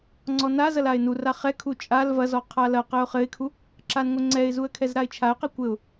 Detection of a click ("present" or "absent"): present